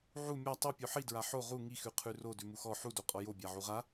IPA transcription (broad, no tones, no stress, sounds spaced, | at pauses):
ʕ u mʲ a tˤ u pʲ o ħ i d ɹ a ħ o ʁ u ŋ i x ʉ qʰ ʉ r o d ʉ m u x ɔ ħ u d o qʼ ɔ j o bʲ a ʕ u ʁ a